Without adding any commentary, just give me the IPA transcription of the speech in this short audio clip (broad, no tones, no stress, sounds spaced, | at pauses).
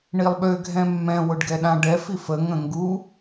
ɳ i lˠ ɓ ø ɡʱ ɛ̃ mː ɛ̃ w ʊ ɖ ɡ ɛ ɗ ã ɖ ɛ f i f ə ŋ ə̃ ŋ ɡ u